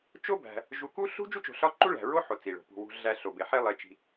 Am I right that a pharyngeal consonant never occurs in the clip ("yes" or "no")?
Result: no